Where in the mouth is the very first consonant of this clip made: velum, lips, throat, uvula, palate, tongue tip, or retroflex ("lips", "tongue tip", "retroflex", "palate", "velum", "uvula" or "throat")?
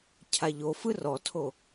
palate